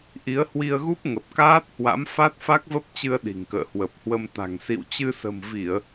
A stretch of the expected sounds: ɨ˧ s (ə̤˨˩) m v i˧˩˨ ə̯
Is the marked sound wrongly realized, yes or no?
no